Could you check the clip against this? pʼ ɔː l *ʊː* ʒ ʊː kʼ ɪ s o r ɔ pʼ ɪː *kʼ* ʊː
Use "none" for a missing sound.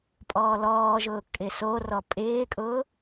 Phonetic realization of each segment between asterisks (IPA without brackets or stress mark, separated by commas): ɔː, kʼ